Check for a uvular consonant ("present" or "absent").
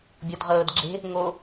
present